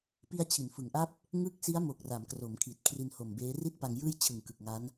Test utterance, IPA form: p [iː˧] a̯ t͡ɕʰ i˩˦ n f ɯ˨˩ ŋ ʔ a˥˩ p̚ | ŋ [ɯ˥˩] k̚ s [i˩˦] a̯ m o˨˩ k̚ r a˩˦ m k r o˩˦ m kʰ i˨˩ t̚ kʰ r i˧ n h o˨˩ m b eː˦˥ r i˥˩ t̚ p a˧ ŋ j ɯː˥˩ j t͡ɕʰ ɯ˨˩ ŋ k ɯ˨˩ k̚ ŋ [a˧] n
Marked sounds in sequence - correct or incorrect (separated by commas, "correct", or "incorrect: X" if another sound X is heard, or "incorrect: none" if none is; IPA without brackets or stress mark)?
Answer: incorrect: i˧, incorrect: ɯ˦˥, incorrect: i˦˥, incorrect: a˦˥